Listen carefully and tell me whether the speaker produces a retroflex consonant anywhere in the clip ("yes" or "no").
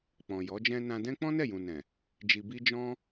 no